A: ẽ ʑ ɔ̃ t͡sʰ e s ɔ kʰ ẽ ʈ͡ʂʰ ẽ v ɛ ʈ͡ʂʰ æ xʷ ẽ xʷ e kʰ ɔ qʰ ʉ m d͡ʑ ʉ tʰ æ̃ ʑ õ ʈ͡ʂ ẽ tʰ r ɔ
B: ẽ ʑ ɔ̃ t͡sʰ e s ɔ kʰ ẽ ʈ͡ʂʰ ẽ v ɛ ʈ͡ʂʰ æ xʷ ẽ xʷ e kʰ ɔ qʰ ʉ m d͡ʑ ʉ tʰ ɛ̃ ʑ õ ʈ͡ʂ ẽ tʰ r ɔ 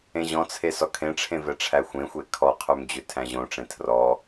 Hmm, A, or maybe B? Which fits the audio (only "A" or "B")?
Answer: A